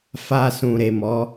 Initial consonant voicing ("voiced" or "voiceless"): voiceless